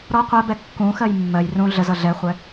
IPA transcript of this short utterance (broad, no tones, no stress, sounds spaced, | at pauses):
ɾ ɔ qʷ ɛ b ɛ kː ũ x ɜ j mː ɜ j r ũ ɮ ə z ʌ ɮ ɛ χʷ ɛ